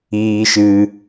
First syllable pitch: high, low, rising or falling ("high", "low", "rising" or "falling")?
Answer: high